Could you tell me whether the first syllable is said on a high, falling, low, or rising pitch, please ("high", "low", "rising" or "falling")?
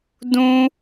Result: high